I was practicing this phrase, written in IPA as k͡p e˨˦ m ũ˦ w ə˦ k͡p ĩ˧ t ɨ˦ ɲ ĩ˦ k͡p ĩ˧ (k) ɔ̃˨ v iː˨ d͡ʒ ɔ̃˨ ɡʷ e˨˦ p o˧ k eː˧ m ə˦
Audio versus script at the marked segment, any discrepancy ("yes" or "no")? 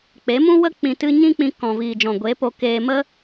no